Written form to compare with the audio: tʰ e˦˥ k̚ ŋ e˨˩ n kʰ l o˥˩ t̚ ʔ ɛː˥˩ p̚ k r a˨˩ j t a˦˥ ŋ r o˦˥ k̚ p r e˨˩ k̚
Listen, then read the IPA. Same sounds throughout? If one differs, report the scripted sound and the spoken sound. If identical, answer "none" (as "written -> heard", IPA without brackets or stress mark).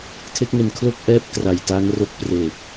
t̚ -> k̚